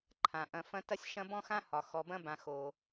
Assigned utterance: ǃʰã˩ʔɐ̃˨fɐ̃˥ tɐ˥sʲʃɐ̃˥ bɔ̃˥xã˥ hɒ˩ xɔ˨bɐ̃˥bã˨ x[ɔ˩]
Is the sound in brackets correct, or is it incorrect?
incorrect